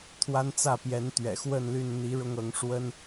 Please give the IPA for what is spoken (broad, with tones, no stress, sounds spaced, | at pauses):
t̪ʰ w a˦ n t͡s ä˥˨ p j ɛ˨˦ n t̪ ɥ ɛ̰˨˩ x w ə˥˨ n l y˥˨ n n̪ i˨˦ ɻ ʊ˦ ŋ ɤ˨˦ ŋ ʂ w ə˦ n